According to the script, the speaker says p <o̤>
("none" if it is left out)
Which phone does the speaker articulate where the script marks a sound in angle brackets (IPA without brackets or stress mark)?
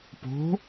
o̤